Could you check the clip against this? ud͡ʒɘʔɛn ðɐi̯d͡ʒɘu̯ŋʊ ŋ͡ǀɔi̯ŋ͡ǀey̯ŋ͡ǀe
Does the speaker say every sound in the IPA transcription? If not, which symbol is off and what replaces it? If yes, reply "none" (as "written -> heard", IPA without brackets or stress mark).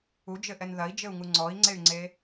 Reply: ʊ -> u